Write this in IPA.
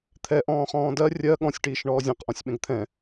t̪ʰɛʔɔ̃ː χɔ̃ːdɜ rʲɜ ɠɔ̃sʲʈiːʃ ɳɔːzʲɛ̃qʔɔ̃sʲ ɓɛ̃ɡt̪ʰɛ̃

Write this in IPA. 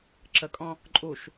ǁəkʼɔ̃ | ǃʼuʃ

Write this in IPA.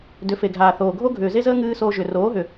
dʏ˨˦fe˨ɡʱaː˨θoː˨ ɡʱo˦ɡʱʏː˨ze˦zəː˦ ŋɨː˦soː˧ ʒʏ˨ roː˨˦ɦʏ˨

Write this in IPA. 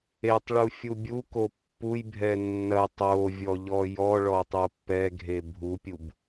etˤɭu fʲubʲuko pːujbʱɛ nːɐ tˤovʲɔ ʎɔjɔɭɔ tˤopːɛɡʱe bʱupʲub

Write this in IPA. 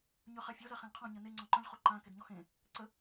ɲøχafʲo zaχẽlqʰɔ̃ ɲəne ŋ͡ǀɔ̃ǃœ̃ʎχoǃã kedɲɔxẽ | ǀə

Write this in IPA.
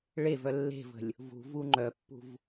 ɭevœ lːe̤və̤lʲ | vṳvu ŋ͡ǃœpːṳv

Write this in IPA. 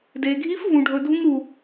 de˩ɡʱi˧˥f vũ˩ɖʱɵ˩ dʱũ˧ŋɾu˩

